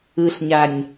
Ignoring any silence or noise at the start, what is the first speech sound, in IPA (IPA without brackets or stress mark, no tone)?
ɯ